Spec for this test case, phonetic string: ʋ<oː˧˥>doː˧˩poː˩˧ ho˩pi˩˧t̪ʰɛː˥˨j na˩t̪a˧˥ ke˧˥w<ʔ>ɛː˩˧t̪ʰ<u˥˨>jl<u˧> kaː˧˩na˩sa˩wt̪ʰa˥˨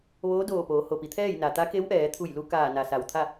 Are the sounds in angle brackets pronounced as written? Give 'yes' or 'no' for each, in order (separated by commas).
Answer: yes, yes, no, yes